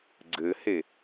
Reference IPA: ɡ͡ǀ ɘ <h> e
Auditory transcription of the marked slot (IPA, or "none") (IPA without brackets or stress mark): h